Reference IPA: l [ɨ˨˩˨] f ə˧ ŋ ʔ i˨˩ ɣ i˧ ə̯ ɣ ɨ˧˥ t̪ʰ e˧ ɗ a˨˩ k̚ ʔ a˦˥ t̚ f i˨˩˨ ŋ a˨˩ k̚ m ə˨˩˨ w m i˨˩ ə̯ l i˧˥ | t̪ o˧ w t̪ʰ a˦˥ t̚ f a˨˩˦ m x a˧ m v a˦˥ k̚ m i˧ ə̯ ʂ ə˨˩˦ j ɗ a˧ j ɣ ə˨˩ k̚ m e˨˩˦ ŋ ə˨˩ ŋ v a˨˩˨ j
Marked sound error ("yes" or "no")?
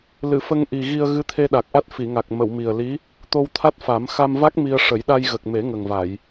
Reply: no